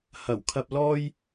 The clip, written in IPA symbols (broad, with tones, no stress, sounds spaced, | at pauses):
h ɐ˨˩ w kʰ ɐ˧ p̚ l ɔː˥ j